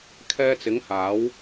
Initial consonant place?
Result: velar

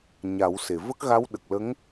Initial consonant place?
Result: palatal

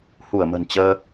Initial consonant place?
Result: glottal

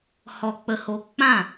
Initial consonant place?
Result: glottal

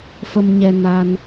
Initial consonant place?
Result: labial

